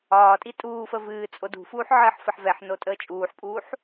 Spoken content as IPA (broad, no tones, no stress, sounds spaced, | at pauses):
ɒː tʼ i tʼ uː f ə v ɨː t͡sʼ o d ṳ f uː ħ ʕ əː ħ f ə ħ v ɛ ħ n o tʼ əː t͡ʃʼ uː ħ pʼ uː ħ